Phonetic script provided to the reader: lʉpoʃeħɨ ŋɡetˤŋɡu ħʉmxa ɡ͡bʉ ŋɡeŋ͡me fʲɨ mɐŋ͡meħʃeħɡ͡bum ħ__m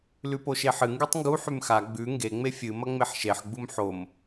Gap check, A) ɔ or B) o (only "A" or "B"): B